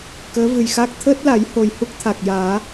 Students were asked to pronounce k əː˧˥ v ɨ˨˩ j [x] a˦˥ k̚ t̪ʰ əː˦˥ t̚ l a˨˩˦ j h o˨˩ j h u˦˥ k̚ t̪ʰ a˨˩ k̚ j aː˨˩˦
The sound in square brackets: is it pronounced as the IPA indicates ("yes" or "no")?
yes